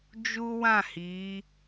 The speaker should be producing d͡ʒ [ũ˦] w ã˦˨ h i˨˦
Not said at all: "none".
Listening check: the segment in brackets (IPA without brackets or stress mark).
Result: u˦